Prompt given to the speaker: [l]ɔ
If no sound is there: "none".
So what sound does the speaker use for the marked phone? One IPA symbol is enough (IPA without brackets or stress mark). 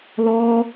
l